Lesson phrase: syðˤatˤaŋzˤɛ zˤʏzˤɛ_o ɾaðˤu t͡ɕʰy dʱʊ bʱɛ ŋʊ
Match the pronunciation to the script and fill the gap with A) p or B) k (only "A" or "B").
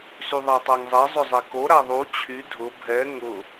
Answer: B